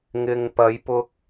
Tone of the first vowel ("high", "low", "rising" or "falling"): low